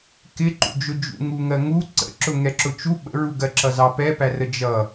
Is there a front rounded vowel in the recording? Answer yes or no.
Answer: no